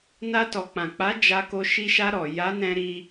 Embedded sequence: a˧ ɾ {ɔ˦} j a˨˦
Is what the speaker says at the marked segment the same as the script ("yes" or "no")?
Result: no